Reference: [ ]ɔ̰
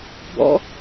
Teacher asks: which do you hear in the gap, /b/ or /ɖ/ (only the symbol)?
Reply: b